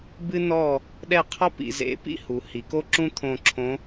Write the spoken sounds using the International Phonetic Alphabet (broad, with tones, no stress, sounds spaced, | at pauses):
b ɨ˥ n ɔ˥˨ | ɗ ɛ˥˨ qʰ ɔ˥ p ḭ˩˧ z ḛ˨˥ p ḭ˥ h u˩˧ h i˩˧ k o˥ ǁ ũ˥ t̪ʰ õ˧˩ ǁʰ õ˨˥